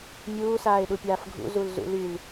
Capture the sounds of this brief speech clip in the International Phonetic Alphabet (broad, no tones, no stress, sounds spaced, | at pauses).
mʲ uː s aː ɪ̯ ɗ u pʲ aː f ɡʱ ṵ z u l z ṵ l y l